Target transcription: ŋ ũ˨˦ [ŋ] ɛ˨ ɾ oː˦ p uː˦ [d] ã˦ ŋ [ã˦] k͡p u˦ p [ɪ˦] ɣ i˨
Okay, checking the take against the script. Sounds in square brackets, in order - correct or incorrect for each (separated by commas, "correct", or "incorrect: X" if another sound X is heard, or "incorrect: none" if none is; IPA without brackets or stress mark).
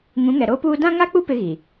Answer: correct, correct, incorrect: a˦, correct